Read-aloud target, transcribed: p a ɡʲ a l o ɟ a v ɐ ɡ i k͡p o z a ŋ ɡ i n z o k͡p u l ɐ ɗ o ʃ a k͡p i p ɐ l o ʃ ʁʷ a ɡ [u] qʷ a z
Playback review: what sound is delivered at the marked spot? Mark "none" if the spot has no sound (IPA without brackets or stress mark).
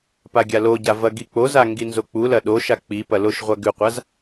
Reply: ʉ